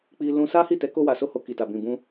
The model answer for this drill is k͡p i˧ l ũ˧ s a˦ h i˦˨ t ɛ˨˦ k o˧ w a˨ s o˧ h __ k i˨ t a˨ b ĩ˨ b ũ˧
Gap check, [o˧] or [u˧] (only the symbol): o˧